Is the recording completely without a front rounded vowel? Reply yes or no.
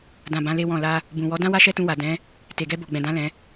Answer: yes